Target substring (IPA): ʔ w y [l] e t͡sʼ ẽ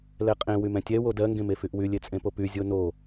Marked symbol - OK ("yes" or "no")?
no